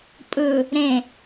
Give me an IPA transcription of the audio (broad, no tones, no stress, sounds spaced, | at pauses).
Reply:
pʼ ɯ | ɾ ẽ